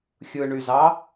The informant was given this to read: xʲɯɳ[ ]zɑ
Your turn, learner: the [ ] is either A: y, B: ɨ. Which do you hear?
A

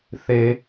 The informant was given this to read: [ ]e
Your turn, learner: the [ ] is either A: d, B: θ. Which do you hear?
B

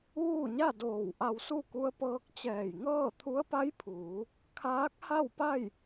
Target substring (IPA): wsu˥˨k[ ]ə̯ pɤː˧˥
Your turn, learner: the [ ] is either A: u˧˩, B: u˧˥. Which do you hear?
B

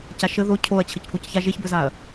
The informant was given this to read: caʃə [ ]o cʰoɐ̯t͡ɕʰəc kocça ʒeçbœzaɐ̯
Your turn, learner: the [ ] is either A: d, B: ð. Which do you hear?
B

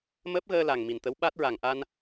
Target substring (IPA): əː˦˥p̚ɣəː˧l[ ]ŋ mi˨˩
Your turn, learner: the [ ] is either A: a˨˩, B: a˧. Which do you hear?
A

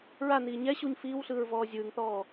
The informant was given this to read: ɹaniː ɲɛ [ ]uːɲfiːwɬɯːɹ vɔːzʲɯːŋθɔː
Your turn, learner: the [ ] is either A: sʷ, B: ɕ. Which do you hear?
B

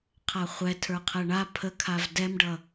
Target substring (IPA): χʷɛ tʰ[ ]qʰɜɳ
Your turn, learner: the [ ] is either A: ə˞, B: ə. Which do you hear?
A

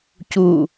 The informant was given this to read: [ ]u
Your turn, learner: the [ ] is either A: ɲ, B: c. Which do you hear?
B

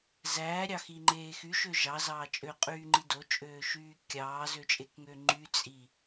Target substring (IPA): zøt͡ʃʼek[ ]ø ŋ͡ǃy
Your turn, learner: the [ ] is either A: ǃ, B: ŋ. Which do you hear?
B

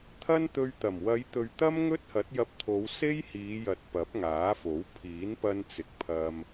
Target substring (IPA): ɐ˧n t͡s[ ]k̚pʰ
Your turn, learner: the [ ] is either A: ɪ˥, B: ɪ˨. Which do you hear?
B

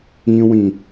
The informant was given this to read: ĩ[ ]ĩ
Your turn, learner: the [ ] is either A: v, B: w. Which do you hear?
B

